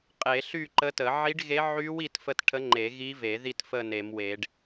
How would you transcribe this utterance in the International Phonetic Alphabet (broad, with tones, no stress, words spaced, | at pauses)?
qʼe˨˩˦ɬy˥˨ǃə˧˥tə˨˩˦ ʕi˧˥ɖɣe˧˥ ʕy˧˥w i˧˥tfə˧˥t ʈʰə˧˥ ŋ͡ǃe˨˩˦ɣi˧˥ ve˨˩˦ ði˥˨tfə˥˨ne˨˩˦mwe˨˩˦ɖ